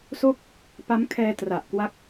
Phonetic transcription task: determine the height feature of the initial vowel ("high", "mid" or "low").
mid